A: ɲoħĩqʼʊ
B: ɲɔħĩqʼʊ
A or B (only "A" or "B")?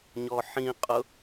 B